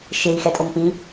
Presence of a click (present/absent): absent